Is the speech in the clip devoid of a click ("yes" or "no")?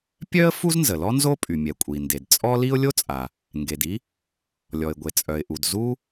yes